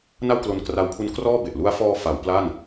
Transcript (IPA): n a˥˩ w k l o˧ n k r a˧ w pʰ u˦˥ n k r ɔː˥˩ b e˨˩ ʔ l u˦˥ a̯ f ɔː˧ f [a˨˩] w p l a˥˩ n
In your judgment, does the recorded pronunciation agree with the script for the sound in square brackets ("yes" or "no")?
no